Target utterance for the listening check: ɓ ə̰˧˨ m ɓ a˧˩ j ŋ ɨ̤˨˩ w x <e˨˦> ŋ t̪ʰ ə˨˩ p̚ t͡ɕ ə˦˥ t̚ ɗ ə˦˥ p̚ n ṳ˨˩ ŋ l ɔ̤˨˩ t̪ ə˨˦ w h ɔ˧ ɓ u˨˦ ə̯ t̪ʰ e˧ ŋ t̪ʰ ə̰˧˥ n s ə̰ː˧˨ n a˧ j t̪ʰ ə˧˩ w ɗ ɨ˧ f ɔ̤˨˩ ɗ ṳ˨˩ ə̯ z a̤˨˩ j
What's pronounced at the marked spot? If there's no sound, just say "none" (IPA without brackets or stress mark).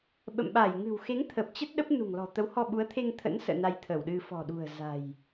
e˨˦